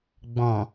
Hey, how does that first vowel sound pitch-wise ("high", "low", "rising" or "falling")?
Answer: low